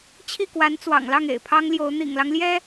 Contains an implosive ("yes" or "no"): no